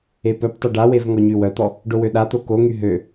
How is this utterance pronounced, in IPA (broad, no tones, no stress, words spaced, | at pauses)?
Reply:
epœptˤe ɖawev ŋɔɲywœt̪ɔ | ɖowøɗat̪o koŋy ɦø